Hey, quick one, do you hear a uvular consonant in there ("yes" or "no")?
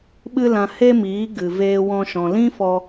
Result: no